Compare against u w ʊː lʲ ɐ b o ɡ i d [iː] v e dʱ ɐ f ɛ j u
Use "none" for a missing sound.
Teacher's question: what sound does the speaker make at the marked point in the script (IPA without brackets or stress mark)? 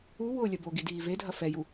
iː